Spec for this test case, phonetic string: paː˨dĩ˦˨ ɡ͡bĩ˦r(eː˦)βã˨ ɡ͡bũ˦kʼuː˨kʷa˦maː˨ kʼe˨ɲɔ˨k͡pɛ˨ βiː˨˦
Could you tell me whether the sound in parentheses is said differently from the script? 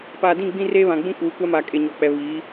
no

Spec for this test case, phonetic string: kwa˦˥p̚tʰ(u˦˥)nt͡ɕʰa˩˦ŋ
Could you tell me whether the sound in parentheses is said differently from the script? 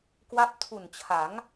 yes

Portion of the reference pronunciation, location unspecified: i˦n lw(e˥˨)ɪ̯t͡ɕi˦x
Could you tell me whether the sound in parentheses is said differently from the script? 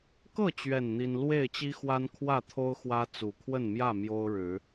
no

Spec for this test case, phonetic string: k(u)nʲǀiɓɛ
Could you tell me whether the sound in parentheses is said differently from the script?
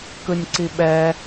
yes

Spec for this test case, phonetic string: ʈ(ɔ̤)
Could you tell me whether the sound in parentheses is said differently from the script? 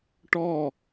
yes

